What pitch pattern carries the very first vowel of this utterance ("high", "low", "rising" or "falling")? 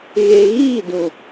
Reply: low